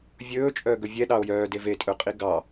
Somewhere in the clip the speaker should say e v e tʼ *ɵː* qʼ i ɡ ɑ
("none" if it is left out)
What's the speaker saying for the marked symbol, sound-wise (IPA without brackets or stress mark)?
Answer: ɵ